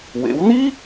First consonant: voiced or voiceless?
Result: voiced